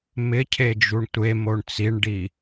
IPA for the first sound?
m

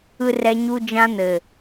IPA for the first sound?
ɯ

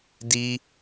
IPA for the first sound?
d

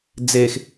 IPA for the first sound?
d͡z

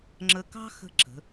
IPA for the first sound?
ŋ͡ǁ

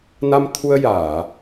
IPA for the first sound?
n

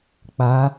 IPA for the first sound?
k͡p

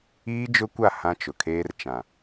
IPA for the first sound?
iː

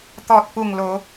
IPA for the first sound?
t̪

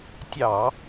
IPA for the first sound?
tʲ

